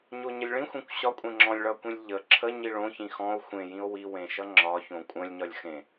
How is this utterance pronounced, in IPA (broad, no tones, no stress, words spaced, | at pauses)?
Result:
ɲoɲəlʲɭĩxʷẽkʷ ɕɒ kʷʼẽŋ͡ǁɔ̃lʲ ɭʌkʷĩlʲ ʎə ǁʰə ɲiɭõ çĩxɔ̃o̯ xʷẽjĩo̯ wiwẽʃʌ ŋ͡ǁɒ çõkʷʼə̃lʲ ɲɒlʲxẽ